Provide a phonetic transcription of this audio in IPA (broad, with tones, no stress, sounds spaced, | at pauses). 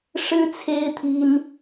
ʂ ɻ̩˦ t͡sʰ e˦ ɪ̯ t̪ʰ i˦ n